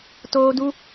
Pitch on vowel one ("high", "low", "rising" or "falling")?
high